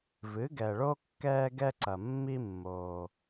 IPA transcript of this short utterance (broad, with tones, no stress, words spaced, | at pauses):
vɨ˩˥ɡɛ˩ɭo˥ kːɛː˧ɡɛ˧ǀɐ˩ mːi˧mːoː˩